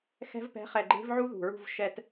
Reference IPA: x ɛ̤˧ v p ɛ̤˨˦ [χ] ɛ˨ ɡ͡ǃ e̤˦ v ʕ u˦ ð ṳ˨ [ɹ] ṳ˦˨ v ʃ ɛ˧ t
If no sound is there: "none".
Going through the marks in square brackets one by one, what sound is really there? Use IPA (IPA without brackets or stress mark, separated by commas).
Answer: χ, ɹ